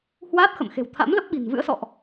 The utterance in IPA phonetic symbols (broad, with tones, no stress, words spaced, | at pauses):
hwaː˦˥t̚xə̰˧˨mxe̤˨˩w t̪ʰa̰˧˥mlə˦˥p̚ ɓi̤˨˩nvɨ̰˧˥ə̯sɔ̰˧˨ʔ